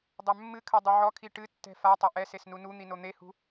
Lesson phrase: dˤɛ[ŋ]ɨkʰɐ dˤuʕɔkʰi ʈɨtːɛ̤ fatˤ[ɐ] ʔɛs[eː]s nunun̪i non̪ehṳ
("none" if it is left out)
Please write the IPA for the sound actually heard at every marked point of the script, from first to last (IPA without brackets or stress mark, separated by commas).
mː, ɐ, e